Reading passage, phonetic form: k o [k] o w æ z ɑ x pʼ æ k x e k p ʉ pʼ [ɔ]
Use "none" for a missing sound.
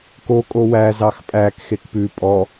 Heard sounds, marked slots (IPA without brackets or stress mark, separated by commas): kʼ, ɔ